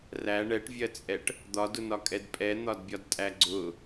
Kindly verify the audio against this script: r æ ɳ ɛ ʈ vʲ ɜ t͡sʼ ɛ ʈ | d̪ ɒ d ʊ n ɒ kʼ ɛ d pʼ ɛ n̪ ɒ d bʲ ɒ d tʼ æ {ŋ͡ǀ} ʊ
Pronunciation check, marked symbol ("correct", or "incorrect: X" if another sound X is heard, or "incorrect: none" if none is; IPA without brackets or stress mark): incorrect: ɡ͡ǀ